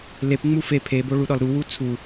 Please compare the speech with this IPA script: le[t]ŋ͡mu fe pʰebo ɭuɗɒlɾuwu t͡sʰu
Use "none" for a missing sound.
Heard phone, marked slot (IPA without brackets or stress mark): p